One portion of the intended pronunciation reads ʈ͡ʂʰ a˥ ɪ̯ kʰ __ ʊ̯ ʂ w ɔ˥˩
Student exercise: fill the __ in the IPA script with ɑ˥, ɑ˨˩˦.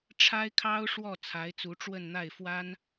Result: ɑ˥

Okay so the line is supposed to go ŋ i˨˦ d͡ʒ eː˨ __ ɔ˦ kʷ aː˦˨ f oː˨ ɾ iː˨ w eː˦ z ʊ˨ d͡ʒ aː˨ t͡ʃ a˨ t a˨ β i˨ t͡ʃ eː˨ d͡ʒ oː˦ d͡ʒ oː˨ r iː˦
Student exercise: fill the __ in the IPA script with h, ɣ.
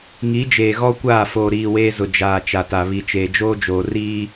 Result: ɣ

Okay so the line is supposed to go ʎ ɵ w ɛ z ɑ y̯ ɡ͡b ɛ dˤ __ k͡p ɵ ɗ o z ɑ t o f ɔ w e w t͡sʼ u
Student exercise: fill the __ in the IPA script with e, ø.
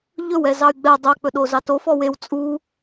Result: ø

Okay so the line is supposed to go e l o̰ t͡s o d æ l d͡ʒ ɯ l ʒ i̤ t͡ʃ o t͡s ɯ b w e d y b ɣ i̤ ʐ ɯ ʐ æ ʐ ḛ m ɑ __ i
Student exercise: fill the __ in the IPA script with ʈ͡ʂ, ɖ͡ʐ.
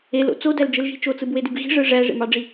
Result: ɖ͡ʐ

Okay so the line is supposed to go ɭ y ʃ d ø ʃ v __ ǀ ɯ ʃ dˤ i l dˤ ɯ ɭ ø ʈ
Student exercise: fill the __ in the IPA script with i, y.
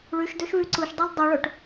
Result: y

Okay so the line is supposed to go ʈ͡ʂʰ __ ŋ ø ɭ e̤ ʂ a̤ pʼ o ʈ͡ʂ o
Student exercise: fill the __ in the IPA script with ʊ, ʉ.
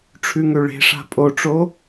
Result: ʉ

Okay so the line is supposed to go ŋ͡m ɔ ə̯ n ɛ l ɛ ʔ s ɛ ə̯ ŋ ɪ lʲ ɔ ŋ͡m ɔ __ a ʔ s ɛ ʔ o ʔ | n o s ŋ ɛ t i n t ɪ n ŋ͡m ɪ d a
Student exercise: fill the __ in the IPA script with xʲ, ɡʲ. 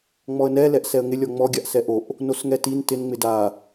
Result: ɡʲ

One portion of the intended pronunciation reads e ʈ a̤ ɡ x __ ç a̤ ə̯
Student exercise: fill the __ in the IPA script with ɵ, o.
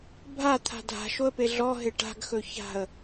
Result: ɵ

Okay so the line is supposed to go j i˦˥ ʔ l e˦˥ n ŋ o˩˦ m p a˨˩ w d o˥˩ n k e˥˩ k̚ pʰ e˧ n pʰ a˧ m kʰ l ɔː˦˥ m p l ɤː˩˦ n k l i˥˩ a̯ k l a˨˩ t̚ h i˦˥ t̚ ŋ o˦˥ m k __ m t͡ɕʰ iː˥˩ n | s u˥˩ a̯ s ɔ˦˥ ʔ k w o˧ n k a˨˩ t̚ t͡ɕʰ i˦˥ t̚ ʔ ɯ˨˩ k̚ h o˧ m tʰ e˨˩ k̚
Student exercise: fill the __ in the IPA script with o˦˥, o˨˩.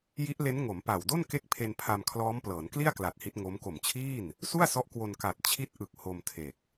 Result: o˨˩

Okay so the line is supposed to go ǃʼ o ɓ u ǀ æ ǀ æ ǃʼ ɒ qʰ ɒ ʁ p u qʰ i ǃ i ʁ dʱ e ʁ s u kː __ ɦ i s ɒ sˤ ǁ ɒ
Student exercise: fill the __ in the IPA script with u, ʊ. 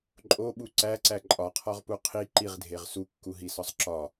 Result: u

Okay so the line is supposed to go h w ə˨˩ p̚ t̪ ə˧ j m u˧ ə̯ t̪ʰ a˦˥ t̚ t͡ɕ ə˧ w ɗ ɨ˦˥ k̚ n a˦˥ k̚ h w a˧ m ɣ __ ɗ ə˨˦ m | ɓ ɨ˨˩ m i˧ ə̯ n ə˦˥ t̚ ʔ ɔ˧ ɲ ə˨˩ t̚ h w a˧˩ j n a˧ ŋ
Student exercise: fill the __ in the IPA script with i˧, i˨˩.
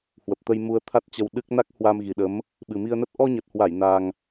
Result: i˨˩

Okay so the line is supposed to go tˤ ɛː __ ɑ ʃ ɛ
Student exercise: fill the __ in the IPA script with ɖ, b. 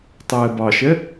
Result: b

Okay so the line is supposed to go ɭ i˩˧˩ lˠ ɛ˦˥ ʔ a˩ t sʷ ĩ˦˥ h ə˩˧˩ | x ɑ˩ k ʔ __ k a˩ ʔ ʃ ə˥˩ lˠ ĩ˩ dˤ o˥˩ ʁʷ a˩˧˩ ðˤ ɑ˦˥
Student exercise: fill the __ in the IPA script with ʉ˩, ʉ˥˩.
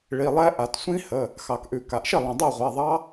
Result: ʉ˩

